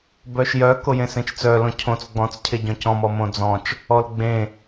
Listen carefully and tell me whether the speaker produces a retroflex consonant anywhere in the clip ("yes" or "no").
no